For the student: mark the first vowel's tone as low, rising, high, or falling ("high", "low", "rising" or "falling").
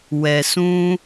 low